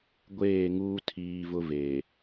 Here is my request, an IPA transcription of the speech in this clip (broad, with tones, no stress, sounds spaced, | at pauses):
ɡʷ eː˦˨ ŋ uː˦ tʰ iː˦ v ʊ˦ v e˨